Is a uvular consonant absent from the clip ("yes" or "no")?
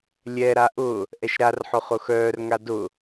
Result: no